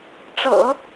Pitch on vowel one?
low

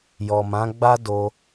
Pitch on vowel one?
low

